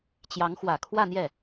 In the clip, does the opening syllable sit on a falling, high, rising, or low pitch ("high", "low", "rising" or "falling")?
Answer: rising